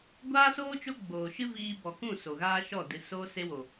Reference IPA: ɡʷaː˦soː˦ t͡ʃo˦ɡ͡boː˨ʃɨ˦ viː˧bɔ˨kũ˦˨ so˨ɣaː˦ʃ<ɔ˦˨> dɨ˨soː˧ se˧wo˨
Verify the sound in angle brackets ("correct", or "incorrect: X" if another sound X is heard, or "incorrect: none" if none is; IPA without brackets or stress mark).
correct